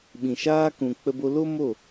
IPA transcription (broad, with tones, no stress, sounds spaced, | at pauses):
ɓ ĩ˨ ʃ aː˧ k ũ˨ k͡p ə˧ b o˧ l o˦ m o˦˨